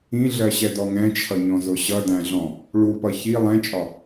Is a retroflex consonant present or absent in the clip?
present